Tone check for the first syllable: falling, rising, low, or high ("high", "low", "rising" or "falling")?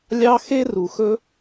high